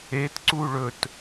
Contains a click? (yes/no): yes